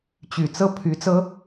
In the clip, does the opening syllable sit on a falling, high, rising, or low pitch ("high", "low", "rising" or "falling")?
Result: low